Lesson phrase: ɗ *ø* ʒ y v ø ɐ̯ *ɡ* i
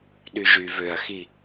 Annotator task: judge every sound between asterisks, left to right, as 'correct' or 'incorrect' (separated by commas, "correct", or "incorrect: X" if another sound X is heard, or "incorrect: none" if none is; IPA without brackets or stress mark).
incorrect: y, incorrect: x